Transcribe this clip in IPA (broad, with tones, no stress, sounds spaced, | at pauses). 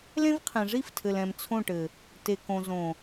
l ẽ˦ v qʰ ẽ˨ ʐ i˦ f tʰ ɘ˨ l ɛ̃˨ m t͡sʰ õ˦˨ ʈ ɘ˨ | t e˨ k õ˨ z õ˨